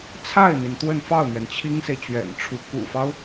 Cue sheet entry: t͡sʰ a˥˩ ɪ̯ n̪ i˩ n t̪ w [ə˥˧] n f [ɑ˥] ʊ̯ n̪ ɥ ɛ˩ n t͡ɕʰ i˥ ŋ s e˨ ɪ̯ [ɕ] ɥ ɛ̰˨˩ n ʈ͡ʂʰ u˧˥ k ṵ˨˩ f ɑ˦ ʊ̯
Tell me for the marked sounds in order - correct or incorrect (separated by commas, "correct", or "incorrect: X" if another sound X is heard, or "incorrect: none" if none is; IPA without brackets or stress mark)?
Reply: correct, incorrect: ɑ˥˩, incorrect: t͡ɕ